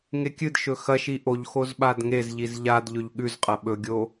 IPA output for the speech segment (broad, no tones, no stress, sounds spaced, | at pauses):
ŋ e kʲ ɨ d ʃ ɵ x ɐ ʃ i ʔ o ʎ x o z ɓ a d ŋ e z ʎ i z ʎ a d ʎ ɵ ʎ ɠ ʉ z qʼ ɐ ɓ ɵ ɡʲ o